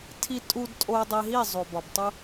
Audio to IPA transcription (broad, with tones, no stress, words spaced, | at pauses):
tʰi˧tʼu˧dtʼo˧ dˤe˧ɦi˦˨ zˤo˨bɒ˨btˤu˦